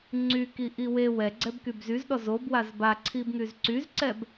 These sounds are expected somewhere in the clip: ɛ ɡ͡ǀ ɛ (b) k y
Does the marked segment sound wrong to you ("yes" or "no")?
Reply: no